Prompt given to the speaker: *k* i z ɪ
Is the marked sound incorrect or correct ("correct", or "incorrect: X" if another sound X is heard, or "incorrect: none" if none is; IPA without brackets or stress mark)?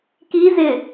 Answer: correct